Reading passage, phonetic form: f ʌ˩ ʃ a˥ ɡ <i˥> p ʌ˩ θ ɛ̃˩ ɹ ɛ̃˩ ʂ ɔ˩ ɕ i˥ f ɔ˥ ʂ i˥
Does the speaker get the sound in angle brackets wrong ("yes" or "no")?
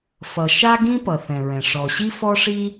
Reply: yes